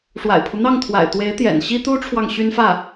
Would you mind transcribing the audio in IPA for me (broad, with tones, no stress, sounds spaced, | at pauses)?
ʂ w a̰˨˩ ɪ̯ pʰ u˦ n̪ ɑ˥˩ ŋ t̪ʰ w a̰˨˩ ɪ̯ t̪ w e˧˥ ɪ̯ t̪ j ɛ̰˨˩ n ɕ i˥ t̪ u˥ ʈ͡ʂʰ w ɑ˨ ŋ ɕ y˥ n f ä˥˩